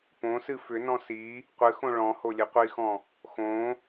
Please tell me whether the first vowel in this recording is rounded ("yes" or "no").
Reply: yes